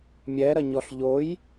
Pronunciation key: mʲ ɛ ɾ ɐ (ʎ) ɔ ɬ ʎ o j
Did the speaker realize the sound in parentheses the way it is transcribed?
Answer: no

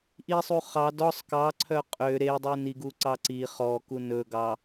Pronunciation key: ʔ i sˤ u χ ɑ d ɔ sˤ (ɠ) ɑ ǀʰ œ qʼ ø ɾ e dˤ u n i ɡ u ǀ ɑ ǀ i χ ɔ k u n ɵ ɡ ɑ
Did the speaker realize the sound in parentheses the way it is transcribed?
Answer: no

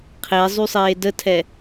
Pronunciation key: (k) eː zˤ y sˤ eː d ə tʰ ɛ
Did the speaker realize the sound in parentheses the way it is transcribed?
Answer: no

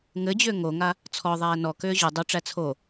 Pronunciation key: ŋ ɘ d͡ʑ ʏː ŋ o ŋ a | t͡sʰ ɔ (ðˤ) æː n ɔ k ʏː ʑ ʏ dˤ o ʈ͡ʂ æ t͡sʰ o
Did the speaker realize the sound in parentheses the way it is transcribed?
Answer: yes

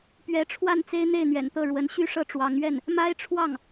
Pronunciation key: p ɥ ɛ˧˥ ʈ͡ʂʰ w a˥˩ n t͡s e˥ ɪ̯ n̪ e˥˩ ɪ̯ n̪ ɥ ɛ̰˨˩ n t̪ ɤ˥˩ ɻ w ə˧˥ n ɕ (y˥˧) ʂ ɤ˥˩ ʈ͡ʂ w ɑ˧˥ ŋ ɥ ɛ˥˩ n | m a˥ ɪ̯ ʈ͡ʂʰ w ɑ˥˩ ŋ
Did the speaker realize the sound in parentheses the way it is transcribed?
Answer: yes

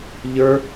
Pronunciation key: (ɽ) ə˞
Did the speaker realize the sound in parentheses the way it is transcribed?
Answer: no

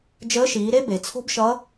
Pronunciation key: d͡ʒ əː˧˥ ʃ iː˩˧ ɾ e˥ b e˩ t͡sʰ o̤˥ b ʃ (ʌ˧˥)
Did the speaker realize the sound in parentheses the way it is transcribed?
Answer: yes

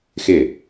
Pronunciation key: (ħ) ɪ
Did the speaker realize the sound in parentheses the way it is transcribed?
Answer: no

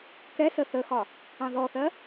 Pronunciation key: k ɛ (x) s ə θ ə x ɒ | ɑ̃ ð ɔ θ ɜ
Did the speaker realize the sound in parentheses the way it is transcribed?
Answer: no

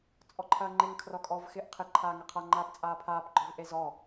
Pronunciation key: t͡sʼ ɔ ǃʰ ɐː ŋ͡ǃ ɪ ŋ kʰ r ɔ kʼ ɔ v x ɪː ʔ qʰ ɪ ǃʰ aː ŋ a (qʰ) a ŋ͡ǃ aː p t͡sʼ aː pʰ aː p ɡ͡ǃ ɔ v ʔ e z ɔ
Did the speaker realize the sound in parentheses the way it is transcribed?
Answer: yes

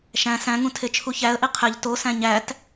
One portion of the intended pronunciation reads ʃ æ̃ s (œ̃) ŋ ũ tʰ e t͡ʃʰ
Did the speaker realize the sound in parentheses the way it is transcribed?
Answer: no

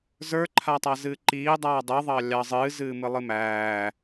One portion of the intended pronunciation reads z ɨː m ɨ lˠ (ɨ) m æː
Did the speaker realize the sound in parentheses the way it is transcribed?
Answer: yes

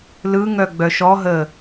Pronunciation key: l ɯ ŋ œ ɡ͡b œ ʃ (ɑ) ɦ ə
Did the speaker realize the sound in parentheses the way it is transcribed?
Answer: no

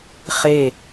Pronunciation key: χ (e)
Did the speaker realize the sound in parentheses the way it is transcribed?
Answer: yes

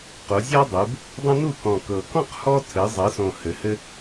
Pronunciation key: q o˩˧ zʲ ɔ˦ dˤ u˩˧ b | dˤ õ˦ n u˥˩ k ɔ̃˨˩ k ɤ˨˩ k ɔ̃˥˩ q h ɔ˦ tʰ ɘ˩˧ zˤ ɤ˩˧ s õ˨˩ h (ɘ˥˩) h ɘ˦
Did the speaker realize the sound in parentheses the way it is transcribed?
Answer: no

